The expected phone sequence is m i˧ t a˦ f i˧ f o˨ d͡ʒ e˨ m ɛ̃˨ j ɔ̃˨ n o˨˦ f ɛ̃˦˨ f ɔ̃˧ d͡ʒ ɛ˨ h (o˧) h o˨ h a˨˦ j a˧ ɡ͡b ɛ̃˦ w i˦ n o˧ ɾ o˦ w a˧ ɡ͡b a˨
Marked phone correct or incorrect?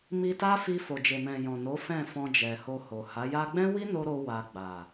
correct